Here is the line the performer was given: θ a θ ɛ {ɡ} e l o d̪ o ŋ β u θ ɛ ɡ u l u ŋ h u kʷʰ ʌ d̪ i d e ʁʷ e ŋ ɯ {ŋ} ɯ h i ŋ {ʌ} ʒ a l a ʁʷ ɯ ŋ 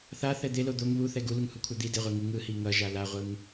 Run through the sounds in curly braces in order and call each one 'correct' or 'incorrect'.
incorrect, correct, correct

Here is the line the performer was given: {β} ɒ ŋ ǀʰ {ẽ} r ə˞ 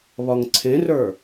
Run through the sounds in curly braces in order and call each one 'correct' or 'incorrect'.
correct, correct

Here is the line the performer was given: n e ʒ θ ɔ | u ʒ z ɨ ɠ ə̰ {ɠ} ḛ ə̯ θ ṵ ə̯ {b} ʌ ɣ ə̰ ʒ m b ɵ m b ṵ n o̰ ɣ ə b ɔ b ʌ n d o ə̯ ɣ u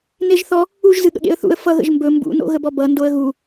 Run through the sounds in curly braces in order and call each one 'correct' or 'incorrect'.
correct, incorrect

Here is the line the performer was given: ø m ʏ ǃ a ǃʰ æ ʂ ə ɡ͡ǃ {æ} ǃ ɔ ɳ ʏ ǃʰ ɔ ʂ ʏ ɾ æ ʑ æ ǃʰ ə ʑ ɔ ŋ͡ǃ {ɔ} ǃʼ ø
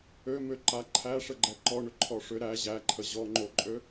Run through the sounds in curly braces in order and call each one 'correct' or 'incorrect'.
incorrect, incorrect

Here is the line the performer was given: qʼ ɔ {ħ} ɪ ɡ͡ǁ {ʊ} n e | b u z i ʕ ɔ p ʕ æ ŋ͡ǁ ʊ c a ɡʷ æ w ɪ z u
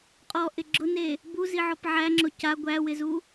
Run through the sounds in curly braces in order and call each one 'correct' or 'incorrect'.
incorrect, correct

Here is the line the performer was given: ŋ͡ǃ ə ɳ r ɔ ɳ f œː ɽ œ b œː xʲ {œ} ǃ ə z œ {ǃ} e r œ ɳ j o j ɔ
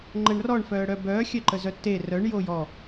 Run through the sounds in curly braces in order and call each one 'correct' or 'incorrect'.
correct, incorrect

